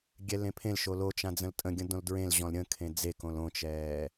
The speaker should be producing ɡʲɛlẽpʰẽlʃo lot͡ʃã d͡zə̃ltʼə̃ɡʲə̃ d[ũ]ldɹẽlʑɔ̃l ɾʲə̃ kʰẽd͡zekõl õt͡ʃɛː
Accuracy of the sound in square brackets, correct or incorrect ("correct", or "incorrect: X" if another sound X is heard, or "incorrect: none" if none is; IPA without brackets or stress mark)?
incorrect: õ